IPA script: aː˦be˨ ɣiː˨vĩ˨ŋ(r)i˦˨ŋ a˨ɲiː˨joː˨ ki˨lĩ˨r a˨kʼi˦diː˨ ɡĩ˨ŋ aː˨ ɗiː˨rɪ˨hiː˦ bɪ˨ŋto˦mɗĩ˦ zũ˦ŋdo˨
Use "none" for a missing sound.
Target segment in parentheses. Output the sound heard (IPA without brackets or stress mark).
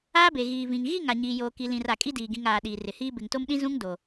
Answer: ɣ